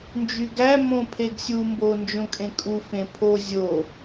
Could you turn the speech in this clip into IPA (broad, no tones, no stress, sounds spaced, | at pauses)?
n d͡ʒ y ɡ æ m õ pʰ e ɡ sʲ u m b o n d͡ʒ õ kʼ ẽ kʼ u f ẽ pʰ o zʲ o